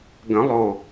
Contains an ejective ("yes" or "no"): no